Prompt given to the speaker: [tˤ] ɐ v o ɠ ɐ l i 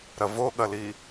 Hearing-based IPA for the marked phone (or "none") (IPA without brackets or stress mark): ɾ